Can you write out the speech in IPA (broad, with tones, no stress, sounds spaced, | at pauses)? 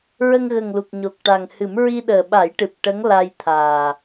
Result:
ɹ ə˧ ŋ ɣ ə˨˩ ŋ l u˨˩ k̚ ɲ o˨˩ k̚ ʈ a˨˩ ŋ h ɨ˨˩˦ m ɹ i˧ ɗ əː˨˩ ɓ a˨˩˦ j ʈ ɨ˨˩ p̚ ʈ ə˧˥ ŋ l a˧ j t̪ʰ aː˨˩